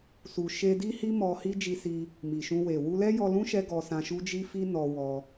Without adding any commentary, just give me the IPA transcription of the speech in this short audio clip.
s u˨ ʃ e˧ d i˦ h i˦ m ɔ˧ h i˦ d͡ʒ i˧ s i˧ | m i˨ ʃ ũ˧ w e˨ w u˧ l ɛ˦ j ɔ˧ l ũ˦ ʃ ɛ˦ ɡ ɔ˧ s ã˧ ʃ u˦ d͡ʒ i˦ f i˦ n ɔ˧ w ɔ˧

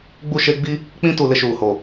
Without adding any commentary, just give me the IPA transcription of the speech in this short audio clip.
ɡ͡b u˦˨ ʃ e˦ ɡ͡b i˦ | k͡p ĩ˦ t u˨ l ɪ˦ ʃ uː˨ h o˨

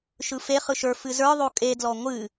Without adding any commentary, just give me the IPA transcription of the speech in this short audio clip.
ʃ ɯ f e χ ɯ ʃ ə˞ f ɨ z ə˞ ðˤ o kʼ e d l ɔ ŋʷ ɨ

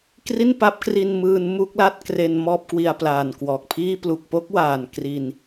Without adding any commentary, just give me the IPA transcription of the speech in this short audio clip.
k r i˥˩ n p a˦˥ p̚ k r i˧ n m ɯː˧ n m u˥˩ k̚ l a˥˩ t̚ k r e˧ n m ɔː˥˩ p̚ k w i˧ a̯ p l aː˨˩ n k w ɔː˨˩ k̚ pʰ iː˥˩ p l u˨˩ k̚ p o˥˩ k̚ w aː˨˩ n k r i˧ n

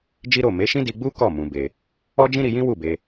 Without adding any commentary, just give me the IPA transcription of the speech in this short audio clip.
d͡ʒ i˦ ɾ o˦˨ m e˨˦ ʃ ĩ˦ d i˧ ɡ͡b u˦ k ɔ˦˨ m ũ˧ b e˧ | ɔ˦ d͡ʒ ĩ˦ ɾ i˧ j ĩ˦ w u˦˨ b e˧

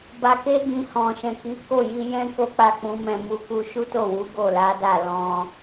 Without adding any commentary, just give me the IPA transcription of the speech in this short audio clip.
b a˧ k e˦ ɡ ĩ˧ h ɔ̃˨ ʃ ɛ̃˨ k i˨˦ k o˦˨ j i˧ j ɛ̃˦ k o˦ k͡p a˦˨ k͡p ũ˨˦ m ɛ̃˦˨ m u˧ k u˧ ʃ u˦ t o˦˨ w u˨˦ ɡ o˦˨ l a˨˦ d a˦˨ l ɔ̃˧

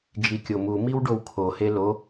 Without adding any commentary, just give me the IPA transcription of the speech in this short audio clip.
d͡ʒ i kʲ o m u m i w ɖ o w kʰ o h e l o

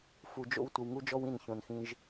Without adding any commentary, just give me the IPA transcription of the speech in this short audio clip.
f u˧ d͡ʒ o̰˦ w tʷ ə˧ w ŋ u˦ d͡ʒ ɔ˦ w ĩ˦˨ n ç õ˧ n x ĩ˦ ʒ

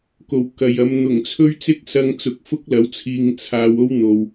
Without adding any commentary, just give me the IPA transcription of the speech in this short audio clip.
k o˨˩ w k ɐ˨ j ɐ˨˧ m n̪ ʊ˨˩ ŋ t͡sʰ ɵ˥ ɥ t͡s ɪ˥ k̚ s ɐ˧ ŋ t͡s ʊ˨˥ k̚ f ʊ˥ k̚ l ɐ˨˥ w t͡sʰ iː˧ ŋ t͡sʰ aː˧ w o˥ w n̪ o˨ w

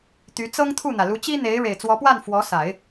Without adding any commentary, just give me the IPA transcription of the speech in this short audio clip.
t̪ y˧˥ t͡s ɤ˥ ŋ t̪ʰ u˥˩ n̪ ä˩ l u˧˥ t͡ɕ i˥ n̪ e˧˥ ɪ̯ ɻ e˨˩ ɪ̯ t͡s w ɔ˧˥ p w a˥˩ n f w ɔ˧˥ s a˨˩˦ ɪ̯

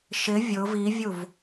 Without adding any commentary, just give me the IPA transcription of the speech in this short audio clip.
ʃ ɪ vʲ ʊ v i vʲ u v

